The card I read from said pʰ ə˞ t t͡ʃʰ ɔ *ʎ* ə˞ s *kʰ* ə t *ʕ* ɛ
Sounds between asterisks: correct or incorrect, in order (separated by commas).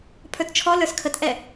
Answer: incorrect, correct, incorrect